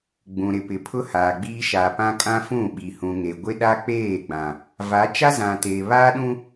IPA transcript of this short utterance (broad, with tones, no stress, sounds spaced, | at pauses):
ɡ͡b ũ˨ ɾ ɪ˨ p ɪ˨ pʰ ʊ˦ h aː˨ ɡ͡b iː˦ ʃ a˨ p ã˦ kʼ ã˦ f ũ˦˨ ɓ i˨ h ũ˨ ŋ e˨ ɡʷ ɪ˦ ɗ a˦ k͡p eː˦˨ ɡ͡b ã˨ | v a˨˦ t͡ʃ a˦ z ã˨ t eː˨ β a˦ ɗ ũ˦